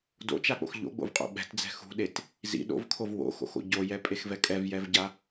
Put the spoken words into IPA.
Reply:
d o̰ t͡ʃ a k͡p o̰ x ʎ o̰ ɡ͡b o̰ v qʼ o̰ ɓ ɛ̤ t d͡z ɛ̤ x ṳ ɗ e t | z ḭ ɗ o̰ v kʰ o v w o̰ x o̰ x o̰ ɟ o j ɛ pʼ e x v ɛ kʼ ɛ v j ɛ v ɟ a

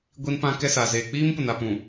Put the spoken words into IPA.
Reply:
ɡʷ i˦ n p ã˦ k ɛ˦ s a˨ z eː˨ k͡p iː˦ m p ʊ˨ n a˨ p ũ˨

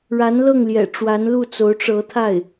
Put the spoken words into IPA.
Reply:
ɻ a˧˥ n l ɤ˥˩ ŋ l j ɛ̰˨˩ ʈ͡ʂ w a˧˥ n l u˥˩ t͡s o˧˥ ʊ̯ ʈ͡ʂ ɤ˧˥ t̪ʰ a˥˩ ɪ̯

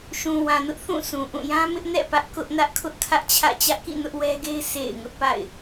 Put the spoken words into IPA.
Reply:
ʃ ũ˨ w ã˨ n ʊ˦ ʔ θ ũ˦˨ s ũ˨ ʔ ũ˦˨ j ã˦ m ɪ˦ ʔ n ɛ̰˦˨ p ä˦ ʔ k ʊ˦ ʔ n ä˦ ʔ kʰ ʊ˦ ʔ kʰ ä˦ ʔ t͡ɕʰ ä̰˦˨ t͡ɕ ä˦ ʔ k ḭ˦˨ n ʊ˦ ʔ w ɛ˦ ɡ e˦ ɪ̯ sʰ ḛ˦˨ ɪ̯ ŋ ʊ˦ ʔ p a̰˦˨ ɪ̯

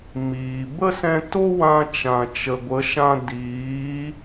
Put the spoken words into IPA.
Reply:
m iː˨ b ə˦ s ɛ̃˧ t o˦ w ã˧ t͡ʃ ã˨ t͡ʃ ə˨ ɡʷ ə˨˦ ʃ ã˧ d iː˨˦

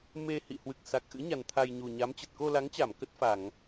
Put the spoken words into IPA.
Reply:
m e˧ h ḭ˧˨ h w ɨ˨˩ k̚ s a˨˩ k̚ ʔ ɨ̰˧˥ ɲ a˨˩ n t̪ʰ a˧ j ɲ u˨˩ ɲ a˨˦ m t͡ɕ ə˨˩ t̚ k o˧ l a˨˦ ŋ t͡ɕ a˧˩ m k ə˦˥ t̚ f a˧˩˨ ŋ

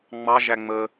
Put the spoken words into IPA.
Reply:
ŋ͡m ɑ ʒ æ ŋ͡m ə

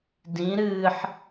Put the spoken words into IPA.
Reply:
d ĩ ɾ ɨː ħ

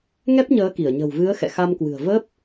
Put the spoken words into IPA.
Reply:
ŋ ɛ˦˥ p̚ ɲ əː˨˦ k i˧˩ ə̯ ɲ ə̤˨˩ w v ɨ˨˦ ə̯ x ɛ̰˧˨ x a˧ m k w ɨ̤˨˩ ə̯ v ə˦˥ p̚

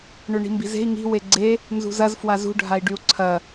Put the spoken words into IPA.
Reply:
ɳ ø ɳ i̤ m b i̤ z e̤ i̯ ŋ i̤ w e ɡ͡ǀ e | n z ṳ z ɐ z f w a z ṳ ɖʱ a i̯ ɖ y u̯ ǀʰ ɐ

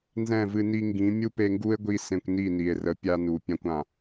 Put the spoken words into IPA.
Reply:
n z ɛ̃˦˨ v ɨ˧ n i˧ ŋ ɡ ĩ˨˦ mʲ u˦ p e˧ ŋ ɡ u˦ e̯ ɡʷ i˧ s ẽ˧ kʷ n i˦˨ n i˨ e̯ r ə˨˦ pʲ a˧ n u˨ pʲ ã˧ kʷ ã˨

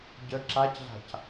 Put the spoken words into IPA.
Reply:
ɟ ə ǁ a c ɮ a̤ c

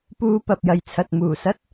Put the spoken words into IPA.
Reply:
p uː˧ p ɐ˨ p̚ j ɐ˨ j t͡sʰ ɐ˨ t̚ m uː˨˩ s ɐ˥ t̚

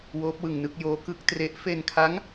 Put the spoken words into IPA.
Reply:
w oː˦˥ p̚ w ɯ˧ ŋ n ɯ˥˩ k̚ j oː˦˥ k ɯ˦˥ k̚ t r e˦˥ ʔ f e˧ n kʰ a˦˥ ŋ

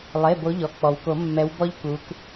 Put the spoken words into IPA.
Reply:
lˠ e˩˧˩ b o˨˦ ʎ ɔ˩ k͡p ɔ˩ w k o˨˩˦ mː ɛ˨˦ w b ɔ˥ ʎ k u˨˦ k

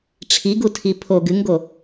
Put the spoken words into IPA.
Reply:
ʈ͡ʂʰ i ɡ u tʰ i pʰ o ɡ ɨ ŋ ɡ o

